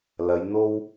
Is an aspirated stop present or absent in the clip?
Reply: absent